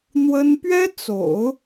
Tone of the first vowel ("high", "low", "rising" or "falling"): high